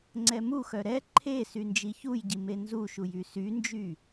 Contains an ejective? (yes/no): no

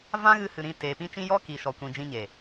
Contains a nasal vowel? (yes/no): yes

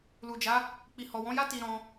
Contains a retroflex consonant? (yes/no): no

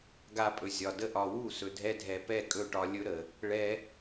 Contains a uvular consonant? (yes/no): no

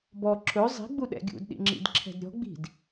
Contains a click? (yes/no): yes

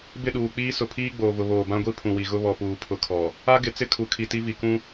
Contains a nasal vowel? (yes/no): yes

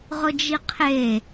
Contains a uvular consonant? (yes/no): yes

